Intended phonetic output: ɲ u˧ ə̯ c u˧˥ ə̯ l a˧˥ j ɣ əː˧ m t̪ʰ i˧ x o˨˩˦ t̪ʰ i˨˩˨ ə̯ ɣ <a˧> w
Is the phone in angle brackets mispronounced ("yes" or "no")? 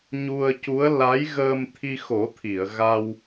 no